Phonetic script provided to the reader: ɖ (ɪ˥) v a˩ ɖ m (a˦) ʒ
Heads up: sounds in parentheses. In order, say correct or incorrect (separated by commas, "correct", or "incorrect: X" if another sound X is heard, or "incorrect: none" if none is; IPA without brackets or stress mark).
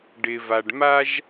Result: incorrect: ɪ˩, correct